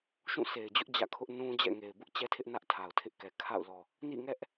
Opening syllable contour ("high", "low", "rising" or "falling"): falling